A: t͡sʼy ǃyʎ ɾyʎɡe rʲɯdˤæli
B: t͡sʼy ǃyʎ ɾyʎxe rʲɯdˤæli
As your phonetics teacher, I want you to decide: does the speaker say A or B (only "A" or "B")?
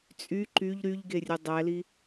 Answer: A